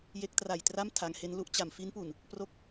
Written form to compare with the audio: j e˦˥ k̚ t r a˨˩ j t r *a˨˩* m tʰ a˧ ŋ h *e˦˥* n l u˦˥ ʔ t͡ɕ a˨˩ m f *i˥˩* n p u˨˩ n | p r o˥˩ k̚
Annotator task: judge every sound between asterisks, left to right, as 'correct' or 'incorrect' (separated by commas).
incorrect, correct, incorrect